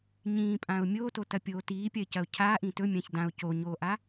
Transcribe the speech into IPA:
ɲ ĩː pʼ ã ʊ̯ mʲ oː t o t ɐ pʲ oː t iː pʲ ɐ ɪ̯ c ɐ ʊ̯ cʰ a ʔ ĩ t ɵ mʲ ã ç d ã ʊ̯ c o ɲ oː ʔ a

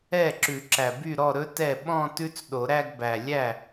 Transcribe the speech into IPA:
ɛ˥˩ ǁ ʉ˨˩˦ ǁ æ˨˩ b y˥˩ ɾ ɔ˥˩ ɾ ɵ˦˥ t ɛ˥˩ ɓ ɔ̃˥˧ t ʉ˦˥ t͡s ɗ o˨˩˦ ɾ æ˥˧ ɡ b æ˨˩ lʲ æ˥˩

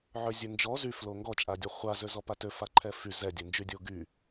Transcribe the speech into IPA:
ʕ ø zʲ ø n d͡ʒ ɔ z y f l o ŋ ɡ ɔ t͡ʃʼ a dʲ ɔ χʷ a z ø z ɔ p a t ø f a ǃʰ ɛ f y z ɛ dʲ œ n d͡ʒ y dʲ o ɡ y

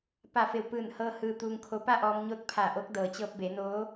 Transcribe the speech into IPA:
p a˧˩ f e˧˩ w p ɯː˧˩ n h ɤː˧ h ɯː˧ t̪ uː˧ ŋ kʰ o˧˥ p a˥˨ ʔ ɔː˧ m ɲ o˧˥ t̚ pʰ a˧˩ ʔ o˧˥ k̚ d ɤː˩ t͡ɕ ɤː˧ p̚ b e˩˧ n oː˧˥

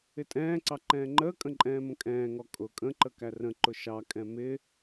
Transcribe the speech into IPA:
ɪ tʼ ɛ̃ː ǀ ɑ ǃ ɛ̃ː ŋ͡ǃ əː kʼ ə̃ ǃʼ ɛ̃ː m ə̃ kʼ ɛ̃ː ŋ ɔ kʼ ʊ kʼ ə̃ ǃ ə k æ r ə̃ ǃ ʊ ʃ ɑ kʼ ɛ̃ m ɪ

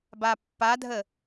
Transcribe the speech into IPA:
b a pː a dʱ ə

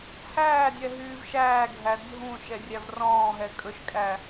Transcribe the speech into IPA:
h æː dʲ ɛ ɦ yː v ʃ æː ɡʱ æ dʱ ũ ʃ ɛ rʲ æ v r ɔ̃ː ɦ ɛ kʼ ɵ ʃ kʼ æ

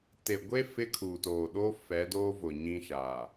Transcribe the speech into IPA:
t e˨ ɡʷ e˦ f ɪ˦ kʰ uː˨ t oː˨ ɗ oː˦ f ɛ˨˦ d oː˦ v ʊ˨ ɲ ĩ˦ ʃ a˨

